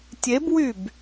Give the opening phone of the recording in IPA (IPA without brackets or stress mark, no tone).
tʲ